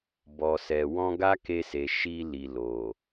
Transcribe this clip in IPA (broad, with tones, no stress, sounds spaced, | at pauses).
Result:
b ɔ˨ s ɛ˨ w ɔ̃˧ ɡ a˦ k e˧ s e˨ ʃ i˧ l i˨ l o˨